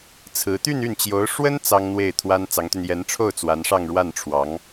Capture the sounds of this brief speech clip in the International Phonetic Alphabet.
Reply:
t͡sʰ ɹ̩˧˥ t̪ y˥˧ n y˥˩ n t͡ɕ j o˧˥ ʊ̯ ʂ w ə˥ n t͡s ɑ˥ ŋ n̪ w e˥˩ ɪ̯ t̪ʰ w a˥ n t͡s ɑ˧˥ ŋ t̪ y˧ n j ɛ˧˥ n ʈ͡ʂʰ o˥˩ ʊ̯ t͡s w a˧˥ n ʂ ɑ˥˧ ŋ ɻ w a˥˩ n ʈ͡ʂʰ w ɑ˧˥ ŋ

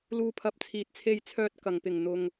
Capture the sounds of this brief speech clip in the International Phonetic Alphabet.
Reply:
l uː˧ pʰ ɐ˧ p̚ t͡sʰ iː˨ t̚ t͡sʰ e˧ j t͡sʰ œː˧ t̚ k ɐ˨˩ ŋ p ɪ˨˩ ŋ n̪ ʊ˨ ŋ

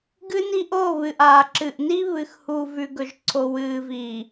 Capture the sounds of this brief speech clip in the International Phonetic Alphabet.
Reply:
ɡ ɨ˦ n i˦ ʔ o˦˨ β ɨ˨ ʔ aː˨ ǁ ɨ˨ ʔ n i˦ β ɨ˨ x h u˨ v ʉ˨ ɡ ɵ˨ ʒ ǀʰ o˨ w ɨː˨ v iː˨

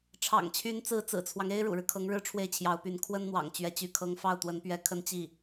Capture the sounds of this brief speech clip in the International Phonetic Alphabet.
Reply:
ʈ͡ʂʰ ɑ̰˨˩ ŋ t͡ɕʰ y˧˥ n t͡s ɹ̩˧˥ t͡s ɹ̩˨˩ t͡sʰ w ɑ˦ ŋ e˥ ɪ̯ ɻ ṵ˨˩ ɻ ɻ̩˦ kʰ ɤ˧˥ ŋ ɻ ɻ̩˥ ʈ͡ʂʰ w e˥˩ ɪ̯ t͡ɕʰ j ɑ˧˥ ʊ̯ p y˧˥ n kʰ w ə˥ n n̪ w ɑ̰˨˩ ŋ t͡ɕ ɥ ɛ˧˥ t͡ɕ y˥ kʰ ɤ˥ ŋ f ɑ˥˩ ʊ̯ t̪ w ə˧˥ n p ɥ ɛ˧˥ kʰ ə˥˧ n t͡ɕ i˥˩

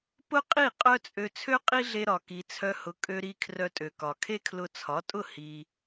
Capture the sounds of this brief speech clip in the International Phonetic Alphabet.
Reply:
p ʊ˥ qʼ i˥˩ qʼ œ˥ t͡sʼ ø˧ t͡sʰ ø˥ qʼ i˥ ɮ e˧ ɾ ɒ˩ k i˩ t͡sʰ œ˧ h ʊ˩˥ kʼ ø˧ ɾ i˧ kʰ r œ˧ tʼ ø˩ k ɒ˩ kʰ e˥ kʰ l ʊ˧ t͡sʰ ɒ˩˥ tʼ ʊ˥˩ h i˩

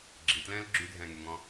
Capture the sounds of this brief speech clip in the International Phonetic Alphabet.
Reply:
ɡ͡ǁ i t l ɛ̃ː l ɡ͡ǁ y dʱ ɛ̃ː ŋ y ŋ ɔ̃

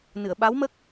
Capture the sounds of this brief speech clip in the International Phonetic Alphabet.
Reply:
n ɨ˨˩˨ ə̯ ɓ a˧˥ w m ə˦˥ k̚

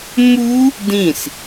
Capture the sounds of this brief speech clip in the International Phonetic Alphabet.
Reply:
m u | d ĩ s

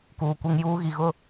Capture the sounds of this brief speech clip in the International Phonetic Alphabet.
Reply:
k uː˨ kʷ e˦ ŋ j uː˦ ɣ i˨ ɣ ʊ˦

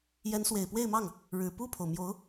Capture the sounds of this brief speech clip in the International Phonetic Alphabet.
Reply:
j ɛ˧˥ n s w e˨˩ ɪ̯ p w e˥˧ ɪ̯ m ɑ˥˩ ŋ | ɻ ɻ̩˨˩ p u˥˩ pʰ o˩ ʊ̯ m j o˧˥ ʊ̯

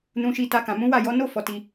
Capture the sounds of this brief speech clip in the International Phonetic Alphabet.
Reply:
n ũ˧ ʃ i˧ t a˧ k ã˨ m ũ˨˦ w a˦˨ j ɔ˨˦ n o˦ f ɔ˧ t i˧

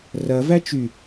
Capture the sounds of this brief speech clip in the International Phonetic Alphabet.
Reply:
r ɐ v æ t͡ʃ y

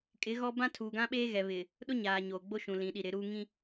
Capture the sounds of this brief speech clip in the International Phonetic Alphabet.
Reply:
kʼ ɪ˨˦ ɣ ɔ˦ b ã˦ tʰ uː˨ ɡ ã˦ ɓ eː˦ ɣ ɛ˨ β ɪ˨ | ɗ ʊ˦ ɲ aː˨ ɲ oː˨ ɡ͡b o˦ ʃ ũ˨ l ĩ˨ ɗ i˨ ɾ ɪ˨˦ ɾ uː˦ ŋ ĩ˦

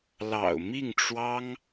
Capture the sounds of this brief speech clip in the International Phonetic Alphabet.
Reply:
l ɑ̰˨˩ ʊ̯ m i˥˩ ŋ ʈ͡ʂ w ɑ˥ ŋ

